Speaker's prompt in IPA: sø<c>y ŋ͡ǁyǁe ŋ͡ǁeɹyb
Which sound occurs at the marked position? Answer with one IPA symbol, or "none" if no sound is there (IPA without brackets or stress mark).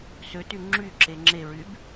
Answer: t